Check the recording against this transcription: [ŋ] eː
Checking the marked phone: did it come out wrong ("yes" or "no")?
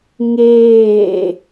no